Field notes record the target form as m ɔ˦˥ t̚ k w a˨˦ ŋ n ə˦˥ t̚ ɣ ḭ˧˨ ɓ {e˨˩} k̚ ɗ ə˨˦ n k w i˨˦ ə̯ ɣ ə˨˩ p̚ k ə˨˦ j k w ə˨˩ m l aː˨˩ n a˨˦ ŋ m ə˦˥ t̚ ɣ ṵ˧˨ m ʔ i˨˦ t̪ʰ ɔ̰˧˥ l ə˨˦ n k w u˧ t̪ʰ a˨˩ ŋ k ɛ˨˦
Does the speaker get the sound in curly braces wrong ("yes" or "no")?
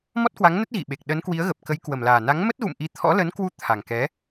no